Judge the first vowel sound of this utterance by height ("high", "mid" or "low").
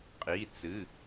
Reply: high